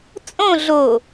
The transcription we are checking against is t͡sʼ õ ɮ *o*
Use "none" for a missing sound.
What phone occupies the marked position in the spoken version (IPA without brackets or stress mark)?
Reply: o